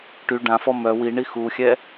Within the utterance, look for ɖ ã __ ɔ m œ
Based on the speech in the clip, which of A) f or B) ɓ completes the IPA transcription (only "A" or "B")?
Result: A